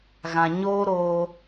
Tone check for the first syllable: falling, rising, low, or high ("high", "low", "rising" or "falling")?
low